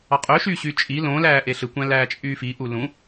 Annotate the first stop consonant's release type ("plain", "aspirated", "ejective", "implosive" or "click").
ejective